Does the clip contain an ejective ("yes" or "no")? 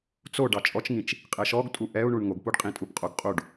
yes